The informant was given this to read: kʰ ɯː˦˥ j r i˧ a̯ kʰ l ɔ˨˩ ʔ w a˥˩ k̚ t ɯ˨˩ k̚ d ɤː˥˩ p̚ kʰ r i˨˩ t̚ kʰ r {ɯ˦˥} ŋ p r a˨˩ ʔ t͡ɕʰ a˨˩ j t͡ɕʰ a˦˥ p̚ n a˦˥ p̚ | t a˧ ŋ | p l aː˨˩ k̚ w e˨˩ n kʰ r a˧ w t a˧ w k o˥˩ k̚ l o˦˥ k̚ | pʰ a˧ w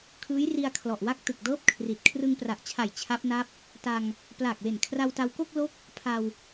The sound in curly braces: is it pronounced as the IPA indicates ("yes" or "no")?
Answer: no